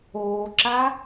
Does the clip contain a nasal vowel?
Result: no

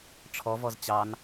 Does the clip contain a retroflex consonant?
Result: yes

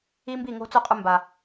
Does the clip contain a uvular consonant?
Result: yes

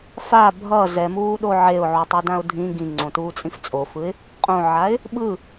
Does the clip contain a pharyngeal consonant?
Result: yes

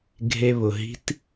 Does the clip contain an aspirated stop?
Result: no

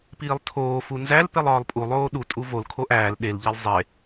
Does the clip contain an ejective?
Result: yes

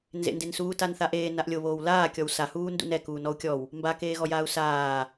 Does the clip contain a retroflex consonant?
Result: no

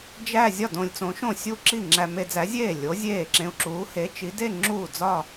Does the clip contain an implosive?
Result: no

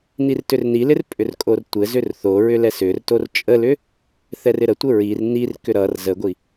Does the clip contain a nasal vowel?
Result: no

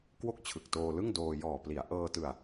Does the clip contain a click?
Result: no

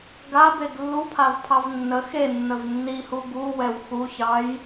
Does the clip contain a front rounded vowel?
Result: no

